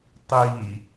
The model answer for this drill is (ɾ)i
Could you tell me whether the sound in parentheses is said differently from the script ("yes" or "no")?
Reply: yes